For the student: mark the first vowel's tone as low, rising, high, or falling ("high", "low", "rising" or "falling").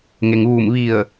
low